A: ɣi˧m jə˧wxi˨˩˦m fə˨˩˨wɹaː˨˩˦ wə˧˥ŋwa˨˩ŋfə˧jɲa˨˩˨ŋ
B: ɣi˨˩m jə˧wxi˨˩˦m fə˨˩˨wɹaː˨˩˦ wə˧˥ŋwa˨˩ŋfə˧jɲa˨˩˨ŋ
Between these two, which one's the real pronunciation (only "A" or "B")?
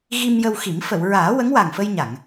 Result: A